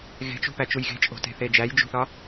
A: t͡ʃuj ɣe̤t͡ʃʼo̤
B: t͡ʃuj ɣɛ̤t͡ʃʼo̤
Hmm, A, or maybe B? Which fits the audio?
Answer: A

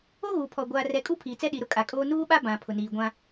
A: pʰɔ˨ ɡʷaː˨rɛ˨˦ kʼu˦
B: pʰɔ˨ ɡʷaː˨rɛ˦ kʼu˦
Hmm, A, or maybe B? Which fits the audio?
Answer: A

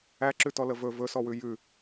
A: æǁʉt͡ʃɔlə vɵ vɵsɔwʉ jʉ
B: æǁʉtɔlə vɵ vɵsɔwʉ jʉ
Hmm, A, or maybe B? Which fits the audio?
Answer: B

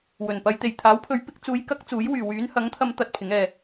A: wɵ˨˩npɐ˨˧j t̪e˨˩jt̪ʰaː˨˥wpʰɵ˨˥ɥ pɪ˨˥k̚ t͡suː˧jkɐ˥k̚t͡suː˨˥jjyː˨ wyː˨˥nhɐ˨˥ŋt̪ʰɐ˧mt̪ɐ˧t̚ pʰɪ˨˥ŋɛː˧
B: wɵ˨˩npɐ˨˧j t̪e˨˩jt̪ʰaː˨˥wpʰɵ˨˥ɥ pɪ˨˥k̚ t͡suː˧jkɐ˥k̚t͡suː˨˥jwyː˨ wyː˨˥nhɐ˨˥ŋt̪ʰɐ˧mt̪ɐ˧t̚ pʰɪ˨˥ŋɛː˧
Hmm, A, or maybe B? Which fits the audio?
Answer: B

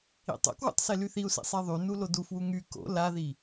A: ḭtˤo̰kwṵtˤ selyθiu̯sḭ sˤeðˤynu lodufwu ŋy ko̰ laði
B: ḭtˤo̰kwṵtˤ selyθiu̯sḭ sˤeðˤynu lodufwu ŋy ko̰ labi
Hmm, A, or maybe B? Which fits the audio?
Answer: A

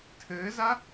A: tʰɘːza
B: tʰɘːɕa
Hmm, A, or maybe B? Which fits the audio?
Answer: A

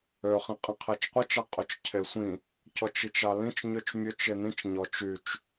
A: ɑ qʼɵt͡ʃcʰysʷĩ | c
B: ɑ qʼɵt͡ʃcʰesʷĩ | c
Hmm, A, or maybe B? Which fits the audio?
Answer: B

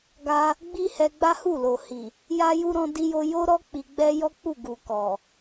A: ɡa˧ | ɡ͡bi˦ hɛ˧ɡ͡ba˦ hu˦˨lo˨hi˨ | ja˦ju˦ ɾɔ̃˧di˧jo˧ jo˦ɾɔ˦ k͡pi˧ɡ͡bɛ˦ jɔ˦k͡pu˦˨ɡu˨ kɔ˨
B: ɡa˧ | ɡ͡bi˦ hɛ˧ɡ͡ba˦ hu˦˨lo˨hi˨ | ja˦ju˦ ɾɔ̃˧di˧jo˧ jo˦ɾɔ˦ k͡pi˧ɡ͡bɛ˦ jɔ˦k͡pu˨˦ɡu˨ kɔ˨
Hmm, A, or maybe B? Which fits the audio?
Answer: A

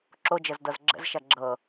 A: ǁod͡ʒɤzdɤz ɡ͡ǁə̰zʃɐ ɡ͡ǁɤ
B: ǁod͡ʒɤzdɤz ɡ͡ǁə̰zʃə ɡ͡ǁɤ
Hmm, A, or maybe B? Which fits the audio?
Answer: A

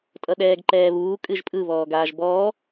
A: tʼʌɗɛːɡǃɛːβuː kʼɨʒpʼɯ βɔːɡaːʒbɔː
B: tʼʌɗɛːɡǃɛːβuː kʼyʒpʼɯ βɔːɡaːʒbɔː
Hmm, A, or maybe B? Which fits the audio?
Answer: A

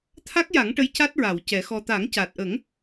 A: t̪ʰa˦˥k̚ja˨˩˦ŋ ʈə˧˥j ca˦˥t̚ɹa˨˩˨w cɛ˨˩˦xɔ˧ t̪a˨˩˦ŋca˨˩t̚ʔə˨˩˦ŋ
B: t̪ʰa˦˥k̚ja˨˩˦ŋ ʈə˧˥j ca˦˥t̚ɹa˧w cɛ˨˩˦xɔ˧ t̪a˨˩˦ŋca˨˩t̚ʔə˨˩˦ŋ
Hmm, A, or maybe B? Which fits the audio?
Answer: A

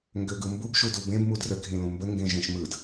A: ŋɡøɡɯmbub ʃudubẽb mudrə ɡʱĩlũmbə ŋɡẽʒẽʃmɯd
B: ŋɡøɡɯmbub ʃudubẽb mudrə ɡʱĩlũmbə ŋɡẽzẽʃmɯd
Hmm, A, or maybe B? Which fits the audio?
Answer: A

